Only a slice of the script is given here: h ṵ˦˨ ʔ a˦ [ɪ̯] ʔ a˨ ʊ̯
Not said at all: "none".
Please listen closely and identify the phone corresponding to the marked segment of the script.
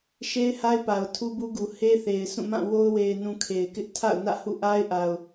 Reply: ɪ̯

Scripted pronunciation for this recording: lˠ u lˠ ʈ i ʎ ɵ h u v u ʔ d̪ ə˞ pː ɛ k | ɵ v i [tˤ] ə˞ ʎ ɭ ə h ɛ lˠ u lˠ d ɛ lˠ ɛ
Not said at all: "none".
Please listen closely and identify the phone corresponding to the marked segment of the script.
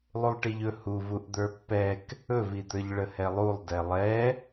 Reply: d̪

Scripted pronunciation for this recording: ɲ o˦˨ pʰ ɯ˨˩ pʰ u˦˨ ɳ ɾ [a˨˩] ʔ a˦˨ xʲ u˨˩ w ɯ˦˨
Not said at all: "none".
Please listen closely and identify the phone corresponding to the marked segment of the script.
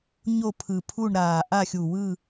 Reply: aː˨˩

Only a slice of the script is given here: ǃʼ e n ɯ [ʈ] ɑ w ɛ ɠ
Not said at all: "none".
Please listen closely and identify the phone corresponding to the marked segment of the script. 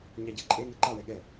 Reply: ǃ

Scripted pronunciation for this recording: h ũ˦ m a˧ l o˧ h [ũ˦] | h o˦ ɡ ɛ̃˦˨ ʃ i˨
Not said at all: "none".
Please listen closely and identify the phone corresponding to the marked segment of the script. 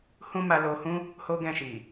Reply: ũ˦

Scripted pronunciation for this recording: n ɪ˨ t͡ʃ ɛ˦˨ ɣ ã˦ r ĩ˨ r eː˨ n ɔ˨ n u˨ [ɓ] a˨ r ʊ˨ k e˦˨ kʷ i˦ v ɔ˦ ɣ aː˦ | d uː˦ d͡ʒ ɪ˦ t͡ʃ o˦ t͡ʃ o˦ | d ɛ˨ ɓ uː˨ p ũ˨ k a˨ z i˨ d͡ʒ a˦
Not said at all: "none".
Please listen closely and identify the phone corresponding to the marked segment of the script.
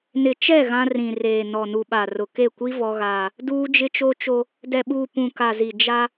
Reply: ɓ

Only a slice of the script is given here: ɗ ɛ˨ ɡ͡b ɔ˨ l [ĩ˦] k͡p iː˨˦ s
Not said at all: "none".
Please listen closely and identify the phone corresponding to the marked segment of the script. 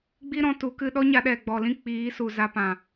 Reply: ĩ˦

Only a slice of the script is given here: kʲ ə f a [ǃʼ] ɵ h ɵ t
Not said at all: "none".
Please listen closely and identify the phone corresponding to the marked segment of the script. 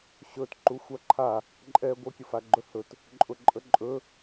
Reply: ɡ͡ǃ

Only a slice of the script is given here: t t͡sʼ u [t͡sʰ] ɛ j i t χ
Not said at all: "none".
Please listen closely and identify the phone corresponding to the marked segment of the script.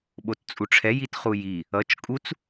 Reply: ʈ͡ʂʰ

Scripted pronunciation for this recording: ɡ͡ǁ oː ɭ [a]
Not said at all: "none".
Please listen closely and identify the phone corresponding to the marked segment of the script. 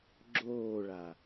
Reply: a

